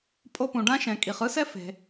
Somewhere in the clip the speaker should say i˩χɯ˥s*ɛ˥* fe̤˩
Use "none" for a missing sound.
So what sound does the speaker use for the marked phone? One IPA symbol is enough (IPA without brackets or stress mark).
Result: ɛ˥